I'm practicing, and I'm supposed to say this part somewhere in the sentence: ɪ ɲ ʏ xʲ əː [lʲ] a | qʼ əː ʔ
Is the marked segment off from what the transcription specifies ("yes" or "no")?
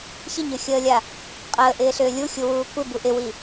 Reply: no